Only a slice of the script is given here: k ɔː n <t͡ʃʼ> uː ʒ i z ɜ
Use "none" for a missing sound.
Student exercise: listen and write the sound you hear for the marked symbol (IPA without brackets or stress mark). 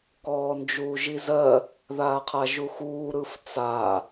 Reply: d͡ʒ